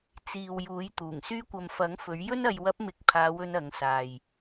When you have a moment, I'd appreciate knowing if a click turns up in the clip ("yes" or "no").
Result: no